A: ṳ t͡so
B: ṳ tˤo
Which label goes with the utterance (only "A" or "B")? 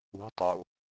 B